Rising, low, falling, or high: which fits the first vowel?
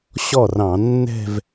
falling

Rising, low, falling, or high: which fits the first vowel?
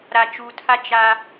low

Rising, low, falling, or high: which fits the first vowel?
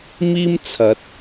high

